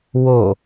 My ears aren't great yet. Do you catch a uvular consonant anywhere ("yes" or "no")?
no